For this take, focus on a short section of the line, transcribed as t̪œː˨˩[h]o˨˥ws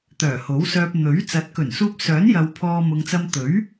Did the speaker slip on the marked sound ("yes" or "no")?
no